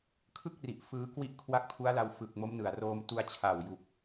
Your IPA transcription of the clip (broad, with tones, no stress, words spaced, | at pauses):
kʰɯ˥˩k̚ri˨˩ʔ fɯː˦˥kwi˥˩ʔ kʰwa˦˥k̚pʰu˦˥a̯la˧w fɯ˨˩k̚ mo˦˥mnɯ˨˩a̯roː˧m tu˧a̯t͡ɕʰa˨˩wju˨˩k̚